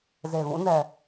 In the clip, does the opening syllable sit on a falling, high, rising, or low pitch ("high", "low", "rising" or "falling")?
low